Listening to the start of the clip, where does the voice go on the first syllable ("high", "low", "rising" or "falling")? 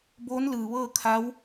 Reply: rising